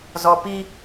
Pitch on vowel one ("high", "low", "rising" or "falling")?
low